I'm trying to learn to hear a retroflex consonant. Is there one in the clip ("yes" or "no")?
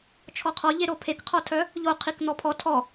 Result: no